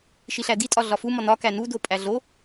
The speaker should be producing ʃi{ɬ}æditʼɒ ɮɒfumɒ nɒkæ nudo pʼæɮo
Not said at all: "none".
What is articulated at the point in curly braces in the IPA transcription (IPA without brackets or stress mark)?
ɬ